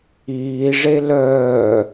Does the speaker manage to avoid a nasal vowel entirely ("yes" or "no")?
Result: yes